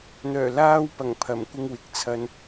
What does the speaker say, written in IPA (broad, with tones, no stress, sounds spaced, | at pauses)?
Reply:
n̪ œː˨˩ l aː˧ w p ɐ˨˩ ŋ pʰ ɐ˨˩ m kʷ ɪ˧ ŋ w ɪ˨ k̚ t͡sʰ ɐ˧ n